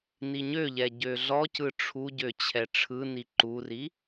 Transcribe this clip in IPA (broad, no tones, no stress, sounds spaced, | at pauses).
n i ɲ ø ʎ ɛ ɟ ø ɮ ɔ c ɯ ʈ͡ʂʰ u ɟ ø t͡ɕʰ ɛ ʈ͡ʂʰ ɯ n i ǃ u r i